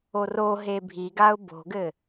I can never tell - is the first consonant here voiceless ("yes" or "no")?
no